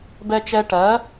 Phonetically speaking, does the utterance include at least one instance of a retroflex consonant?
yes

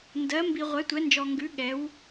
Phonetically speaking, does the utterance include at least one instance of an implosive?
yes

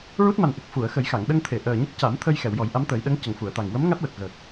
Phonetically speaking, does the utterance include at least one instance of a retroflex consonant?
no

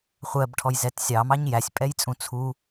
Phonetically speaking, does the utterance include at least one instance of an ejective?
yes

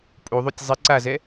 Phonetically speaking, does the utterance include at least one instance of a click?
yes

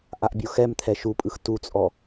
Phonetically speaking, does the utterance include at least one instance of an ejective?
yes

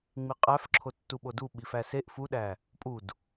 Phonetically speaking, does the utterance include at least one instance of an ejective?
yes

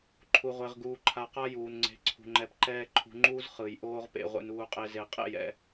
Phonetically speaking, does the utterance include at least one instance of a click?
yes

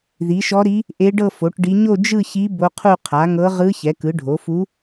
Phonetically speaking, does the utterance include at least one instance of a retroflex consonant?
yes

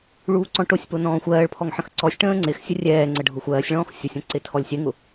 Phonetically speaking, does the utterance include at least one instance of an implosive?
no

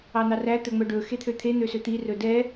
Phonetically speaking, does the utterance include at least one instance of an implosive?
no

